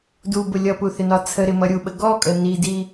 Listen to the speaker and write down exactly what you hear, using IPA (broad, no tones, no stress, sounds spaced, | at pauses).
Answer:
d u b ʊ lʲ ʌ p u θ ɪ n ɒ t͡sʰ ə ɾ ɪ m ʌ ɾʲ u ɓ ə ɡ ɔ kʼ ə n i d i